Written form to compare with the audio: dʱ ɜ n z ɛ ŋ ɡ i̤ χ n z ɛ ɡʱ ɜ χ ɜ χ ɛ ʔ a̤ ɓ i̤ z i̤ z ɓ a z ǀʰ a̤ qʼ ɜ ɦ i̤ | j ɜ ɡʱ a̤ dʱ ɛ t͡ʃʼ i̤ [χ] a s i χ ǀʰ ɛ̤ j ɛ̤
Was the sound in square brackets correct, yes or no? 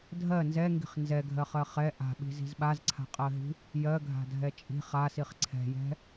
yes